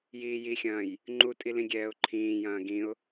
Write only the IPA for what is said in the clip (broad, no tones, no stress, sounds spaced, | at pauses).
j iː j i xʲ ɐ̃ː j | ŋ͡ǃ u tʼ i l ĩ ɡʲ ɛː ʊ̯ ǃʰ ĩː j ɐ̃ː ɡ ĩ ʊ̯